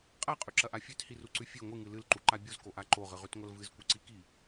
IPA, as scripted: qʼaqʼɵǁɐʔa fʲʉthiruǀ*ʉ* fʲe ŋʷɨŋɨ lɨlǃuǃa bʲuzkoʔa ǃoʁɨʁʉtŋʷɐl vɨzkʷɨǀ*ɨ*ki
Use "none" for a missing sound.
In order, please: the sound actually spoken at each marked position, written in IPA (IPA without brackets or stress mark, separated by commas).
ʉ, i